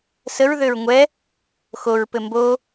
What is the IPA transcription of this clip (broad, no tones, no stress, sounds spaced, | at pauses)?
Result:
s ə ɹ ð ø ɹ ŋʷ ɛ | x o ɹ p ɘ m b o